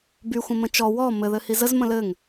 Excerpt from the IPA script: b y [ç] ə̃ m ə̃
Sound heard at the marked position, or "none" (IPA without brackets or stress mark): xʷ